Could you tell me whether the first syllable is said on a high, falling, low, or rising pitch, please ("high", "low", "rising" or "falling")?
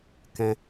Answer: high